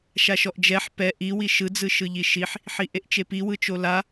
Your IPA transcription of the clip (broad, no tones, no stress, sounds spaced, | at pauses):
ʃ a ʃ ɔ ʔ d͡ʒ ɛ ħ p ɛ ʔ i w i ʃ ɯ d͡z ɯ ʃ ɯ ʎ i ʃ i ħ | ħ i ʔ e ʔ t͡ʃ e p i w ɯ t͡ʃ o l a